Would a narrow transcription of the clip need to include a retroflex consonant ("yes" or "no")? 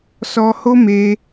no